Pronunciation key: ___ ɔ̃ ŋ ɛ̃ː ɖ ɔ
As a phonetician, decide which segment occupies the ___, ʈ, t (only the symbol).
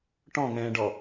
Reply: ʈ